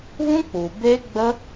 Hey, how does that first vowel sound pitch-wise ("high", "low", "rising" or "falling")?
high